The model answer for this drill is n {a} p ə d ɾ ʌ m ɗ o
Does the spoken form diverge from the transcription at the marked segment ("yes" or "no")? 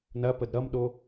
yes